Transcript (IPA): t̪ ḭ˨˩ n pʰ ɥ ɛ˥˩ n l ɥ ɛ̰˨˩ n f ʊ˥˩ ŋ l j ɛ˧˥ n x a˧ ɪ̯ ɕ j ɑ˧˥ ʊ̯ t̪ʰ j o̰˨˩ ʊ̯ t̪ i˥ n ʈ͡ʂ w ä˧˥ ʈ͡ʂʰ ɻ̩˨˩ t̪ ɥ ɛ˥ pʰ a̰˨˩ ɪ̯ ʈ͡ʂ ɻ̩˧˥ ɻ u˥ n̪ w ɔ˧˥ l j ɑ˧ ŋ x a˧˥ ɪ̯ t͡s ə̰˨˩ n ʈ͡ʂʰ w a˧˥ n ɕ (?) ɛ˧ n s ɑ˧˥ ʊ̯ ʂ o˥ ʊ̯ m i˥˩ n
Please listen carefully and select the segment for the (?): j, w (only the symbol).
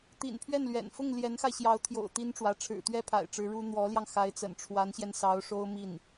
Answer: j